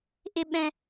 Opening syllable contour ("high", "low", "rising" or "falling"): high